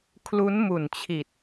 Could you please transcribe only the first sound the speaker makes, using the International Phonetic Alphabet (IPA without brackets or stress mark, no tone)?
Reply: kʰ